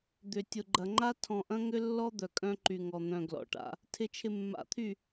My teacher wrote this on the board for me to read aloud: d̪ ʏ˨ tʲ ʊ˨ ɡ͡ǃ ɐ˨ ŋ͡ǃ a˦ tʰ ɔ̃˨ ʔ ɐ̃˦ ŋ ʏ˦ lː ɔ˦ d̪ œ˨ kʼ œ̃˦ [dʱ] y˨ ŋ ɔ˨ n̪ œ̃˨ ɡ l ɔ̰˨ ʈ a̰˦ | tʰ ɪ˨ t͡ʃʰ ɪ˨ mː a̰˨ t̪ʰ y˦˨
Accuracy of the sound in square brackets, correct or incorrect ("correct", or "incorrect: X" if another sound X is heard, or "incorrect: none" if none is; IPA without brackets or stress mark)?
incorrect: ǃ